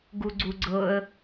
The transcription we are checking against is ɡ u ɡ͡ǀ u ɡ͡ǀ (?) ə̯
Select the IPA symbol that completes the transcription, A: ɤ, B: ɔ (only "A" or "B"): A